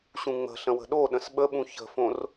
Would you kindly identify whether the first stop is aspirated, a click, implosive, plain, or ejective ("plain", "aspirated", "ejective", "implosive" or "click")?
implosive